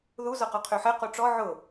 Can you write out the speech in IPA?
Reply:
ðu zɔqɔqʰøħɛ qoʈ͡ʂɔ ʕʊ

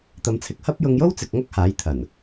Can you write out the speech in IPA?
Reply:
t̪ɐ˨˧mt͡sʰɪ˨k̚ hɐ˥p̚ jʊ˧ŋjo˥wt͡sɪ˨k̚ ŋɐ˥k̚haː˨˥jt̪ʰɐ˨˩n

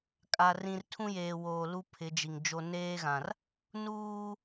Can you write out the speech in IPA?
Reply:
kʼa˨ rĩ˨r tʰũ˦jeː˨ woː˨lu˦ pʰɪ˨˦d͡ʒi˨ŋd͡ʒo˦ neː˦ɣã˨r | nuː˦

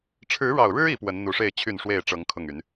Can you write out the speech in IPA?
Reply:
ʈ͡ʂʰɻ̩˨˦ɻɑ˨˩ʊ̯ɻɻ̩˦ i˨˦pwə˨˦n n̪u˨˩ʂe˥˨ɪ̯ t͡ɕʰy˥˨nʂwe˥˨ɪ̯ʈ͡ʂɤ˨˦ŋ kʰʊ˥˨ŋy˨˦n

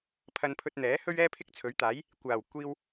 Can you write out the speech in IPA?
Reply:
pʰɐ˧npʰɵ˧t̚n̪ɛː˨˥hɵ˥ɥ ɛː˥pʰɪ˥k̚t͡sʰɵ˨˥ɥt̪aː˨˥j | kʷaː˨˩w kʷiː˧w

